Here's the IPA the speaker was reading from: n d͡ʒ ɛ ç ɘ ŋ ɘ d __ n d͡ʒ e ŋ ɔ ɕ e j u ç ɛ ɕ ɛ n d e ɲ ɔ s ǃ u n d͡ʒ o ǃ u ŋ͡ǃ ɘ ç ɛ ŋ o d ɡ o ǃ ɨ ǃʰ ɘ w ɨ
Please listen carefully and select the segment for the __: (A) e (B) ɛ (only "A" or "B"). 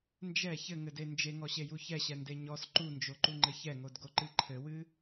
A